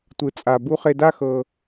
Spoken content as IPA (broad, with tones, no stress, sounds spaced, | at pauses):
tʷ ɯ˨ t͡sʼ a˨ b u˧ χ e˧ d a˦ x ɤ˧